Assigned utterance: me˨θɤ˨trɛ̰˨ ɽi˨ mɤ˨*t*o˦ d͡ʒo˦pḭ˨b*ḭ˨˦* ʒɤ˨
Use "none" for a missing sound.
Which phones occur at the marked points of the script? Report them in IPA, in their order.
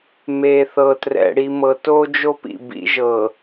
t, ḭ˨˦

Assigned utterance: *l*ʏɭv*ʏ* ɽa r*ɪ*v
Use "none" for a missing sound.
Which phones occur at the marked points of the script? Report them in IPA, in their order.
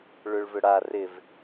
ɭ, ʏ, ɪ

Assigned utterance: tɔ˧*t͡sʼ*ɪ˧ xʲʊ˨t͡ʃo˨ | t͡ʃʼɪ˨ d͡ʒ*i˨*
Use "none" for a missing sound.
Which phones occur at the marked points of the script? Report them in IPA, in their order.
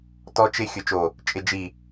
t͡ʃ, i˨

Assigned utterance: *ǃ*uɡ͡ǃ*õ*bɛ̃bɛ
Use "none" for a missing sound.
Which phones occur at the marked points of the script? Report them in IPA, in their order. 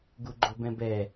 ɡ, o

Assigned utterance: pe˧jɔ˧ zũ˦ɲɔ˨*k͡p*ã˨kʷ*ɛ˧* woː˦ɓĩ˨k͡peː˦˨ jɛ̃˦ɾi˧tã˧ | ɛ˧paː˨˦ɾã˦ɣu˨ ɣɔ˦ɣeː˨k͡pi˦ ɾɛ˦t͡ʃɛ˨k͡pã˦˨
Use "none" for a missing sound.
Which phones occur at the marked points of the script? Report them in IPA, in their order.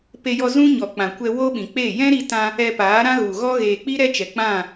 k͡p, ɛ˧

